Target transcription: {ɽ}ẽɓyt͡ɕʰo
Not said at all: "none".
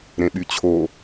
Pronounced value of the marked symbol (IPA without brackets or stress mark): ɾ